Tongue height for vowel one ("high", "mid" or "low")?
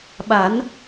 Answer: low